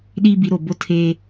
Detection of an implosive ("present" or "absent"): present